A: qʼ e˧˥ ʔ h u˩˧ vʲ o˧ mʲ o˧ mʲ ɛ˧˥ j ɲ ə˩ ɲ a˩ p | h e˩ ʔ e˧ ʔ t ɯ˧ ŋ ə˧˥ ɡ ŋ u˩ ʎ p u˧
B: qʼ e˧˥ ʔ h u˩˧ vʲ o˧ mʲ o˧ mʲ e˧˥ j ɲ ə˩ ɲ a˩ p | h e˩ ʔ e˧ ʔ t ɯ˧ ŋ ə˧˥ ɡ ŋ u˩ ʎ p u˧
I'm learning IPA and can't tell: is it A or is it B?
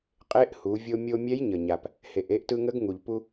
A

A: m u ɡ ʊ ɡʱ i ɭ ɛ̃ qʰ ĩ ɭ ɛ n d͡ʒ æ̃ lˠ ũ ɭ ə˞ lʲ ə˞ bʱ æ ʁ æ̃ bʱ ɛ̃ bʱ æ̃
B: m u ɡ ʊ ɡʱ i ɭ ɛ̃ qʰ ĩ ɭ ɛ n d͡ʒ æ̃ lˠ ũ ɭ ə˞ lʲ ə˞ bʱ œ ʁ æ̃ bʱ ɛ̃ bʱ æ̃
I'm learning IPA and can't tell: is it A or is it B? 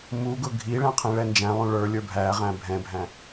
A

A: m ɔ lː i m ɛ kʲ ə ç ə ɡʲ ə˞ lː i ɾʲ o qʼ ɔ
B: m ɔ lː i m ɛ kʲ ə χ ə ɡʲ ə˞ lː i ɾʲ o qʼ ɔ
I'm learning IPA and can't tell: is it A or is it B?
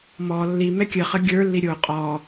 B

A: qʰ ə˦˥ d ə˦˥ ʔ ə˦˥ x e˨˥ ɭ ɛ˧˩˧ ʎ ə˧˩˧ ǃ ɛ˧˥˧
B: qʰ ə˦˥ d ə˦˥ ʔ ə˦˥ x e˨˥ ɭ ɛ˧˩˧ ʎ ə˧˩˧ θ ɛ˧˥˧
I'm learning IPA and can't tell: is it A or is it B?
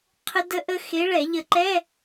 A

